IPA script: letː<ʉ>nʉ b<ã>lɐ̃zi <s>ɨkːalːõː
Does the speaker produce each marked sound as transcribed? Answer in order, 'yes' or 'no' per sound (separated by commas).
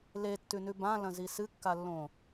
yes, yes, yes